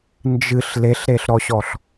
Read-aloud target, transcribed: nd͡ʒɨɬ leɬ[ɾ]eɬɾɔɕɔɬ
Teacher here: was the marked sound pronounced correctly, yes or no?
yes